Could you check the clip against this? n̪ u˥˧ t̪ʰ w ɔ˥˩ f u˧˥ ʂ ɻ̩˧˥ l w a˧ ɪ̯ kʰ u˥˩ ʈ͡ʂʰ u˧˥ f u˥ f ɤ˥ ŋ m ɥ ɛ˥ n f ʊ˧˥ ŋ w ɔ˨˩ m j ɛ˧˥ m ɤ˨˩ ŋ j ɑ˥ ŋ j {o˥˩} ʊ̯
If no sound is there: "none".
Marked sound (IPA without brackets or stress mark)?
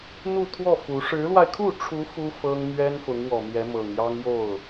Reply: o˥˩